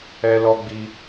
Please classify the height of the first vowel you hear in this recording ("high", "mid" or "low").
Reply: mid